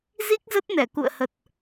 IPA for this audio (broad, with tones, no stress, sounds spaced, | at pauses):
z i˦˥ k̚ z ə˦˥ t̚ n ɛ˧˩ k ṵ˧˨ ə̯ h ə˨˩ t̚